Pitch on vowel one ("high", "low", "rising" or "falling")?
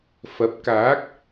rising